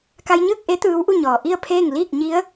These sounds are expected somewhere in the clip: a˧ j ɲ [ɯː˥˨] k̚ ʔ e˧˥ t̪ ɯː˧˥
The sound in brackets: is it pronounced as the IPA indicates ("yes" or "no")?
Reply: yes